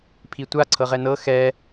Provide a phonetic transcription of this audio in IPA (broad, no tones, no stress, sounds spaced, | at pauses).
pʰ i tʷ a ǀʰ ɤ ʁ ɛ n ɤ x ɛ